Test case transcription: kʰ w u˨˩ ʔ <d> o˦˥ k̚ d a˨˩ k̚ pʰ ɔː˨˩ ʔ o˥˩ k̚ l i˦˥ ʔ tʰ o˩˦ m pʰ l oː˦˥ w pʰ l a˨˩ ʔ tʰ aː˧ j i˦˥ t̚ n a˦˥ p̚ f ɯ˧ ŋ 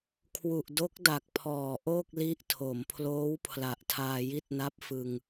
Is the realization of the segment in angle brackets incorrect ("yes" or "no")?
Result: no